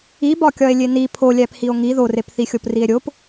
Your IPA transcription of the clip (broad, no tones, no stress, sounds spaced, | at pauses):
i b ɒ kʲ ɒ e̯ lʲ e n i pʰ o lʲ æ p h i o̯ ŋ i ð o r e p θ i xʲ o p r i e̯ ɾʲ o p